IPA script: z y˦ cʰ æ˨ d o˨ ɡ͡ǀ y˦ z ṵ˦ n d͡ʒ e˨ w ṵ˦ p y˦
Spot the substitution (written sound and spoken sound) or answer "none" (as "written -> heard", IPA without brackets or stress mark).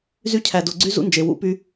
none